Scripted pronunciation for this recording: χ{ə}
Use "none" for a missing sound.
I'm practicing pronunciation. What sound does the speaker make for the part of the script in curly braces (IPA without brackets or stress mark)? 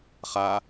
a